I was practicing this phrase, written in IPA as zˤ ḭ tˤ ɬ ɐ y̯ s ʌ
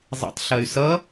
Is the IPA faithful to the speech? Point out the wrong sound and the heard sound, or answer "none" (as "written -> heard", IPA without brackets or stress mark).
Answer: none